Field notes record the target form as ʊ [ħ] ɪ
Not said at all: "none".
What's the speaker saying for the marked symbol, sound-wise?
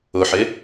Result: ħ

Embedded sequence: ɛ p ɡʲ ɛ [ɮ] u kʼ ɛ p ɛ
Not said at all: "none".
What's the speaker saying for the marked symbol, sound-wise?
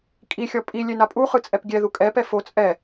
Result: ð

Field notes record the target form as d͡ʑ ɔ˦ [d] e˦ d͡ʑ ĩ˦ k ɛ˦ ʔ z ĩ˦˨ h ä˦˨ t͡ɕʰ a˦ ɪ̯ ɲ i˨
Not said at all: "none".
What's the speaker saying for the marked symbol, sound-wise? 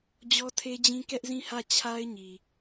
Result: tʰ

